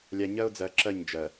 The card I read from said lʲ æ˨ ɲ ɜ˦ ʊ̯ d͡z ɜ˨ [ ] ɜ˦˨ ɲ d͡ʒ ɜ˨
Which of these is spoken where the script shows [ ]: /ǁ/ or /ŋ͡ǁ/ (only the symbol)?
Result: ǁ